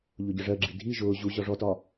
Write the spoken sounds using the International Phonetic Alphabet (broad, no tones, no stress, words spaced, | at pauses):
ʎʊɟəʐɜɡ͡ǁi dʱi ʒʊː ʑu ʑɒʐɔtɒ